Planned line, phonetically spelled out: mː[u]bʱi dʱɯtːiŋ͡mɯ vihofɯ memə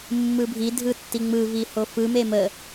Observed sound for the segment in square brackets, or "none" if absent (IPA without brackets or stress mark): ɯ